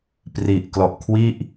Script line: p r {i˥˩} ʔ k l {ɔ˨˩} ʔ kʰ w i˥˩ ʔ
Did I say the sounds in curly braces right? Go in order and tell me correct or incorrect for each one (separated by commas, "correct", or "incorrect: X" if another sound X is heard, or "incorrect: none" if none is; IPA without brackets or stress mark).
incorrect: i˨˩, correct